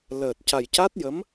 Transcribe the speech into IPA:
l əː˨˩ t̚ c a˨˩ j c a˦˥ t̚ j ə˧˥ m

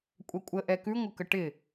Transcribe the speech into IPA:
kʷʼ ɛ kʷʼ ə ʔ ɛ k ʉ ŋʷ ɪ k ə ʈ ɪ

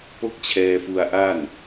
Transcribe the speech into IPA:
p o˥˩ k̚ t͡ɕʰ ɛː˧ f u˧ a̯ ʔ a˥˩ n

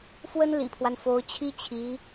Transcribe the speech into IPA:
f w ə˥ n l ḭ˨˩ pʰ w a˦ n f o˧˥ ʊ̯ t͡ɕʰ i˥ t͡ɕʰ i˧˥

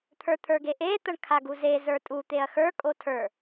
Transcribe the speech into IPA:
t̪ʰ ə˞ t̪ʰ ə˞ ɡ e ʔ e t̪ ɐ ɳ kʰ a ɡ u z e z ə˞ tʼ u t̪ e ɐ̯ x ə˞ kʼ o tʰ ə˞

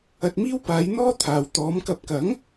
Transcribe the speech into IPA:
ɐ˧ t̚ m iː˥ w p aː˨˧ j n̪ ɔː˥ t̪ʰ aː˨ w t̪ ɔː˨˧ m k ɐ˧ p̚ k ɐ˨˥ ŋ

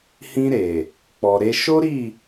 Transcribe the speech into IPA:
h ĩ˧ ɾ e˨ | k͡p ɔ˨ ɾ e˧ ʃ o˦ ɾ i˦˨

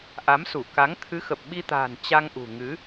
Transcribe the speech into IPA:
ʔ a˨˦ m s u˧˩ k a˨˦ ŋ t̪ʰ ɨ˨˦ x ə˨˩ p̚ ɓ i˧ t̪ a̤ː˨˩ n t͡ɕ a˧ ŋ ʔ ṳ˨˩ ŋ ɨ˨˦

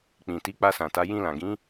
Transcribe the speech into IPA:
k͡p ĩ˨ t i˨˦ k͡p a˧ s ã˨ t a˨˦ j ĩ˧ l ã˨ ɡ ĩ˨˦

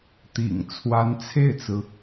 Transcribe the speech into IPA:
t̪ ḭ˨˩ ŋ t͡sʰ w a˧˥ n t͡sʰ e˥˩ ɪ̯ t͡s ɹ̩˩

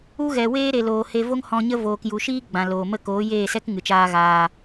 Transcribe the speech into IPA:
u˦ ɣ ɛ˨ w eː˦ ɾ e˨ l oː˨ h e˧ v o˦ ŋ h ɔ̃˧ ɲ ə˦ v oː˨ k j u˨ ʃ iː˦ ɡ͡b ã˨ l oː˨ m ə˦˨ k oː˨˦ j eː˦˨ s ɛ˦ k ŋ ɨ˨ t͡ʃ aː˦ ɣ aː˧

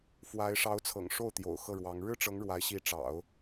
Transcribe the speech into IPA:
f w a˧˥ ɪ̯ ʂ ɑ˧˥ ʊ̯ t͡sʰ ɤ̰˨˩ ŋ ʂ o˥˩ ʊ̯ t̪ j o̰˨˩ ʊ̯ x ɤ˥˩ ɻ w ɑ˧˥ ŋ ɻ ɻ̩˥ ʈ͡ʂ ɤ˧˥ ŋ ɻ w a˧˥ ɪ̯ ɕ i˧˥ ʈ͡ʂ ɑ̰˨˩˦ ʊ̯

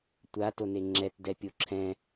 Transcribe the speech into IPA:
tʷ a t o n e ŋ͡ǁ ɛ t d ɛ pʲ o ǁʰ ɛ̃

